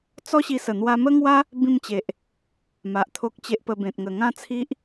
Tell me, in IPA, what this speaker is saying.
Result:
t͡sɔ˦ɕi˧sə˨˩ n̪wa˧mə˦ŋwa˦ | bĩ˥˧mt͡ɕe˨ʔ | ma˨ʔt̪ʰo˦k̚t͡ɕe˦ʔ pə˧bẽ˨t̚ŋə˨˩ ŋã˥˧t͡sʰi˦ʔ

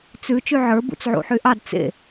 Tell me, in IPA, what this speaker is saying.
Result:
t͡sʉ t͡ʃyʕə˞ bṵt͡sʕṵħyʔɑd t͡sḛ

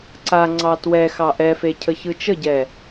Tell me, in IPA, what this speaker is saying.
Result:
ǀa ŋ͡ǀɑtwɛxɑ ʔɛfe cʰəçɯt͡ʃəɟɛ

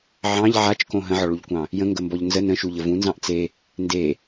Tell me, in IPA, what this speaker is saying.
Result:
ʕɑ̃ʎ ʕat͡ʃkõ ɦə̃ʕɔɭuʎkʷɑ̃ | jə̃ŋɡəmbɔʎ nzə nə̃ʃuʎə vũnzɑ̃ʔ t͡se | nde

